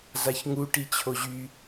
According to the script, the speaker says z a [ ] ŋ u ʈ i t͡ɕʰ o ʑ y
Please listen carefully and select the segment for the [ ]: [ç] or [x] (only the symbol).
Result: ç